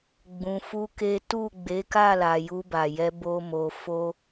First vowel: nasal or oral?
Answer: nasal